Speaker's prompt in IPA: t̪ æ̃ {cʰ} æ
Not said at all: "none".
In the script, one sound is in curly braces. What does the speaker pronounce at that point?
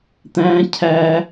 cʰ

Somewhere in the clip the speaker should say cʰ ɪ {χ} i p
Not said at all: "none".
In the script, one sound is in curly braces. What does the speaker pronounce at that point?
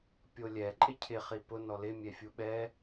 χ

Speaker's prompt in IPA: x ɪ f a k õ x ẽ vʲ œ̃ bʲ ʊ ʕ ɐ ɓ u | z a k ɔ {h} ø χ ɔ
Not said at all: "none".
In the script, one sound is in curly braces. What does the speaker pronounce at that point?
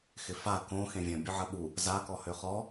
h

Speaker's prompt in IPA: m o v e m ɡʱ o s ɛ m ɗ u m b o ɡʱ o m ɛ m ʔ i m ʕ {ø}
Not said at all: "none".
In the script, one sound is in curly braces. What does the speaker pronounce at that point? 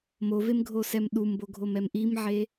e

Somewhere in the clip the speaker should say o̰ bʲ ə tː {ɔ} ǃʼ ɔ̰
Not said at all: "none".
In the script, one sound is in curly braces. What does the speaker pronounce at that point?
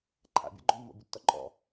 ɔ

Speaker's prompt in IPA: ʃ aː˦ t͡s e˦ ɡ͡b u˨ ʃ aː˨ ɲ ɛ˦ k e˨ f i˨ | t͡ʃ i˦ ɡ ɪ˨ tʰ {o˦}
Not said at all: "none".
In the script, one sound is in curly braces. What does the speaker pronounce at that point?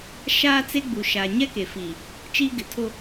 o˦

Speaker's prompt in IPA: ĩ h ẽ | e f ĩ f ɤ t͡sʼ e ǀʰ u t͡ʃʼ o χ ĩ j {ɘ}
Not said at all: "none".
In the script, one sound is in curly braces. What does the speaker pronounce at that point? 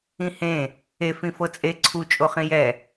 ɛ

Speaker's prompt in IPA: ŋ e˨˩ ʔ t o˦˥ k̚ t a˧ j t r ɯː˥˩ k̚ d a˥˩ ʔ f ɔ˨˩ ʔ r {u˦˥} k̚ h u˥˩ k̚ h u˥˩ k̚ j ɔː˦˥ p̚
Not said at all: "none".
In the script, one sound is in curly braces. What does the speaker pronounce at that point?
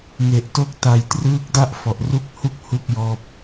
u˦˥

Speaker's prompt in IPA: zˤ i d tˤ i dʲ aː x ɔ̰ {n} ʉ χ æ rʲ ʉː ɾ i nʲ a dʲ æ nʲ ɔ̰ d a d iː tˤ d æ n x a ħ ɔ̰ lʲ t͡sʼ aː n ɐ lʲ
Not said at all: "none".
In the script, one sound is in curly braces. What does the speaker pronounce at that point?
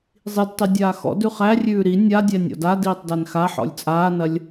d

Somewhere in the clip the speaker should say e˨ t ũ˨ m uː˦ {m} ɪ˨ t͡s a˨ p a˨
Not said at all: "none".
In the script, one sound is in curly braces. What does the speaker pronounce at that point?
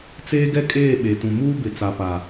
b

